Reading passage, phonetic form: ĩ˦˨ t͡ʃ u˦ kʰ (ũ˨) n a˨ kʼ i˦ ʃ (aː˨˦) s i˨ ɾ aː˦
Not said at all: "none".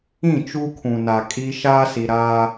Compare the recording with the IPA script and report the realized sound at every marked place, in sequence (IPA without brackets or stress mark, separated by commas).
ũ˨, aː˦